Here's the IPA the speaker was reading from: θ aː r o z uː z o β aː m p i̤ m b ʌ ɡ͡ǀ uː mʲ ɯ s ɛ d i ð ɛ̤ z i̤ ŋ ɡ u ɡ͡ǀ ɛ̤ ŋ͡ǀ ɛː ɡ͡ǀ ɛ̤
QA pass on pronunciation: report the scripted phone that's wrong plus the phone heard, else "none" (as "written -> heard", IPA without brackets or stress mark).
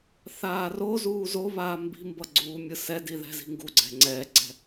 p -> b